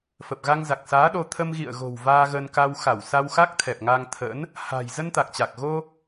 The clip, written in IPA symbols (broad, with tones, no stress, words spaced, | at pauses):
fə˨˩p̚ɣa˧ŋza˨˩k̚saː˨˦ ɗo˧ t̪ʰə˧mɣḭ˧˨ə̯ɣo̤˨˩w vaː˧ɣə˧nka˧w xa˧˩wsa˧w xa˦˥k̚ t̪ʰɛ˨˩p̚ŋa˧ŋt̪ʰə̰˧˥n | ha̤˨˩j zə˧nt̪a˨˩k̚t͡ɕa˨˩k̚ɣo˧